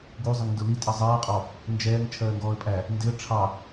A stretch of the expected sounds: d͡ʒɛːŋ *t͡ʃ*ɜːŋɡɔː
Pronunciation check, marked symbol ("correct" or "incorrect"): incorrect